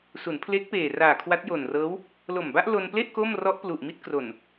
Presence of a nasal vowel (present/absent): absent